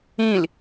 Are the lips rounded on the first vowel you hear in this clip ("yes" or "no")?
no